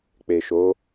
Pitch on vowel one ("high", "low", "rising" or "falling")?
low